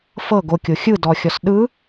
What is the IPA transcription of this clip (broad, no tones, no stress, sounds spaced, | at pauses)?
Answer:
f ɤ ɡ o kʲ o xʲ ɯ d ɔ xʲ ɔ s ɗ ɯ